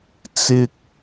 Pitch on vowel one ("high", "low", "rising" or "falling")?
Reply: high